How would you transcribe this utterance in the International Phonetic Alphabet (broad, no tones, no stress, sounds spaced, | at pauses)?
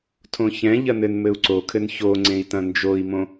tʰ õ ç ɛ̃ ʎ ɐ n ɘ n m ɘ u̯ ǀ o kʰ ɘ n ç o ŋ͡ǀ ẽ i̯ t ɐ̃ n d͡ʒ o i̯ m õ